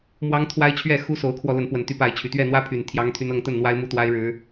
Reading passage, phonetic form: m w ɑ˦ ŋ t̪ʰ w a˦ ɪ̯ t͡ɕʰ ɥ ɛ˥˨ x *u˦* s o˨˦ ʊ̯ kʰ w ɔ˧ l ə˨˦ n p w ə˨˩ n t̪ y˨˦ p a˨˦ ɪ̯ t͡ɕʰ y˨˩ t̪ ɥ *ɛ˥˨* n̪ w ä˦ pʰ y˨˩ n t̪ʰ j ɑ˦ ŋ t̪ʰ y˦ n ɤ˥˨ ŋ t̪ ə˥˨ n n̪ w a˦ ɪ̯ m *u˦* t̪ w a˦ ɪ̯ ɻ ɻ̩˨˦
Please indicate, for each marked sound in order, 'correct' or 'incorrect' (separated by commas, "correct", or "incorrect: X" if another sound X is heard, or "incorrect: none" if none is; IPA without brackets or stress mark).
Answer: correct, correct, correct